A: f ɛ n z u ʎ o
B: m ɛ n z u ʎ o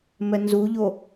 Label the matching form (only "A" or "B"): B